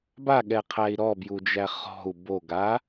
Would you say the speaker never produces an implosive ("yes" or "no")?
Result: no